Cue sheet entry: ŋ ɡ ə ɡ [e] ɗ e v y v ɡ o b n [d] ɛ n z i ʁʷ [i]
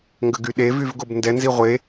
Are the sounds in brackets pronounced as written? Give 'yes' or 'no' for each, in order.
no, yes, no

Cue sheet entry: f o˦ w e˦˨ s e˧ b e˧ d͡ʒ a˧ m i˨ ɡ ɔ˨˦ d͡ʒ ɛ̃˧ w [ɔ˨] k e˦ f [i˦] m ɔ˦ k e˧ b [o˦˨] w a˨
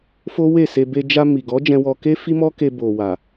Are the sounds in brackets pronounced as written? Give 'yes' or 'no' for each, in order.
no, yes, no

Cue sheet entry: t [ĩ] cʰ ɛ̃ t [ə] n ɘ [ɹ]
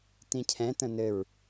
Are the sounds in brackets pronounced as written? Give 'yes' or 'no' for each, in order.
yes, no, yes

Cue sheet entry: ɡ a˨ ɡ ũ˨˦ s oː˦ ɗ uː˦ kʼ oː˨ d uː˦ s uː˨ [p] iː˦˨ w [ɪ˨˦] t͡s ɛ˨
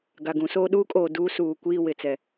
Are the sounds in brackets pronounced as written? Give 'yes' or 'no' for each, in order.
no, yes

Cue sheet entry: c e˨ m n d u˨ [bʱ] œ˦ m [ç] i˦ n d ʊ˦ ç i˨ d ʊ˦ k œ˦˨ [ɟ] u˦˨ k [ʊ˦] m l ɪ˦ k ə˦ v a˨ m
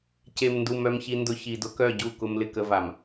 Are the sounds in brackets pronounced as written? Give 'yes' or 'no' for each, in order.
no, yes, yes, yes

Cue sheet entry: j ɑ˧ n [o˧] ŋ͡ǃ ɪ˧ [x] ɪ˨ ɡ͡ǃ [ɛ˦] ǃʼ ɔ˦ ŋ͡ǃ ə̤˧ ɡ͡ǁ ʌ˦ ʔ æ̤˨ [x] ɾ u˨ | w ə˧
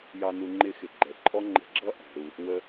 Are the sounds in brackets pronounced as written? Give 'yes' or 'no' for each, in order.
no, yes, no, no

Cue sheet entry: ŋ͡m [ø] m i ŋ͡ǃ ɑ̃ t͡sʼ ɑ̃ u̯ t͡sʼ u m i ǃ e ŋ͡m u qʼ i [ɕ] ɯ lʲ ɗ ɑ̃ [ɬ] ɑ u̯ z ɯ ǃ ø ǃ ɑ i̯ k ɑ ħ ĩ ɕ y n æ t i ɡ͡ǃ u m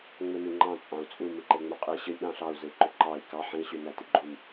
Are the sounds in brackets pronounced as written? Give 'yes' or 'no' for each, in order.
yes, yes, yes

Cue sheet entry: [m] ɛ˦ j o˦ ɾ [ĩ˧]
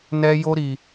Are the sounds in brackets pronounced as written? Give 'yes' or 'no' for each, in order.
no, no

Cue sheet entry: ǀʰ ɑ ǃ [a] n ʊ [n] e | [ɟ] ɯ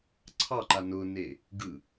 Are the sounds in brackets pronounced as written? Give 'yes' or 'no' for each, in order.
yes, yes, no

